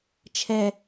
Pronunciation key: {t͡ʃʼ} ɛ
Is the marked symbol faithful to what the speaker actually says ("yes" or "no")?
no